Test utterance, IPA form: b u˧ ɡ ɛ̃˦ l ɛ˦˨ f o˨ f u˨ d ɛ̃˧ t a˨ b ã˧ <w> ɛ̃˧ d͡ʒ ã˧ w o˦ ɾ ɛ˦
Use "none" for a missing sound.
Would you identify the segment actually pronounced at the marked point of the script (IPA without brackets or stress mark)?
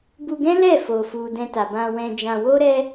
w